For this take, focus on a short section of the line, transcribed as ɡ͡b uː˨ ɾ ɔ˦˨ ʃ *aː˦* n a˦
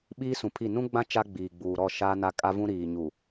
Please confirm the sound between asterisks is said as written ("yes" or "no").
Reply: yes